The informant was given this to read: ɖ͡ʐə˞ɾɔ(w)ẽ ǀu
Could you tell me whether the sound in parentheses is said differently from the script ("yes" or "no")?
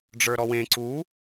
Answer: no